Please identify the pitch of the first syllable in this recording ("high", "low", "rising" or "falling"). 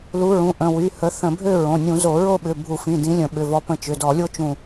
rising